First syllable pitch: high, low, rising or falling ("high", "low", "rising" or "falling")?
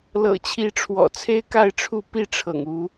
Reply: low